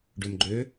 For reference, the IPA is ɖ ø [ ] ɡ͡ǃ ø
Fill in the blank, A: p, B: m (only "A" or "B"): B